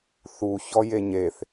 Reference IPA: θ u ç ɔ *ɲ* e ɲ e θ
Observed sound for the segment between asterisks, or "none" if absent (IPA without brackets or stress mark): j